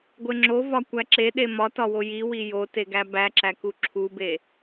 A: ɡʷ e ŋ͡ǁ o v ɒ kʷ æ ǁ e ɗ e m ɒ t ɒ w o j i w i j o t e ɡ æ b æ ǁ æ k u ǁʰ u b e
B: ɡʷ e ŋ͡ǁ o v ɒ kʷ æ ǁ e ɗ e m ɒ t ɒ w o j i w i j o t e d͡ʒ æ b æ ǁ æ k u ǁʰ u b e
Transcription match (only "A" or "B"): A